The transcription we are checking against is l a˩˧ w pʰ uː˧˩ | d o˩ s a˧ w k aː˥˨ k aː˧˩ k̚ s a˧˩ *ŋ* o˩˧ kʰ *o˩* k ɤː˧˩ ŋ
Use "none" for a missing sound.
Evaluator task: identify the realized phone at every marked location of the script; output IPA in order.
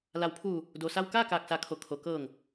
kʰ, o˩

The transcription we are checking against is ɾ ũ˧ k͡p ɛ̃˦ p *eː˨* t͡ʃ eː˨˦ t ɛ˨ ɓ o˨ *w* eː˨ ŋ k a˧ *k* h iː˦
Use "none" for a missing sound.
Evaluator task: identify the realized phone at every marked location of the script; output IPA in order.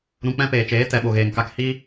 eː˨, ɣ, k

